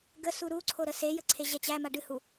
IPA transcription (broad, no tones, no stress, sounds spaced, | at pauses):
ɡ ə s u ɾ u ǀʰ o ɾ ə s e j ə ǀʰ e ʑ ɛ t͡ɕ æ m a ɖ ɨ h u